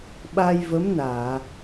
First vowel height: low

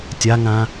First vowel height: low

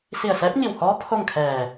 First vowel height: high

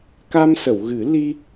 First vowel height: low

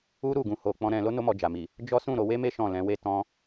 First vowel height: high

